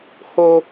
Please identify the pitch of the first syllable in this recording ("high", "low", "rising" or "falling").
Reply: high